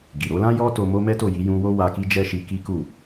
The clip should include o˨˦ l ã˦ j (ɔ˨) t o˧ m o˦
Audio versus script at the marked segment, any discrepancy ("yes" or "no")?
yes